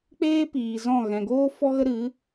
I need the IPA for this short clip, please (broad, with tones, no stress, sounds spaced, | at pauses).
k͡p eː˦ p iː˨ z ɔ̃˦˨ ɣ ɛ̃˨ ɡ oː˦ f ɔ˧ ɣ ə˧ ɾ ɨ˨˦